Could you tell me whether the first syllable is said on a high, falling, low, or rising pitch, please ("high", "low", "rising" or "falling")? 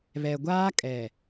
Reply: low